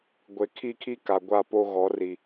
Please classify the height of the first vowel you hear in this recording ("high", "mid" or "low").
mid